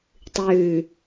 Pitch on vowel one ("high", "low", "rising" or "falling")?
low